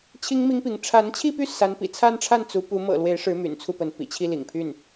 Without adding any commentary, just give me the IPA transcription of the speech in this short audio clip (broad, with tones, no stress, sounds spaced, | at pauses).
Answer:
t͡ɕʰ i˥ ŋ m i˥ ŋ p i˧˥ ŋ ʈ͡ʂʰ a˧˥ n t͡ɕʰ i˥˧ p y˥˩ s a˧˥ n p ḭ˨˩ t͡sʰ a˥˧ n ʈ͡ʂʰ a˥˩ n t͡s u˧˥ p u˧˥ m ɤ̰˨˩ l w e˧˥ ɪ̯ ʂ ɻ̩˧˥ m y̰˨˩ n t͡sʰ u˥˩ p ə˧˥ n p ḭ˨˩ t͡ɕʰ i˥˩ l ḭ˨˩ ŋ pʰ y˥˩ n